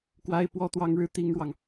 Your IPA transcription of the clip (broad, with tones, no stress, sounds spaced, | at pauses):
k w a˥ ɪ̯ p w ɔ˥ t̪ w ɑ˥ ŋ ɻ ɻ̩˥ t̪ i˥ ŋ ɻ w ɑ˨ ŋ